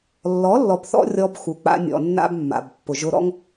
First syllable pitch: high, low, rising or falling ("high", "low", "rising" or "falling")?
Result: rising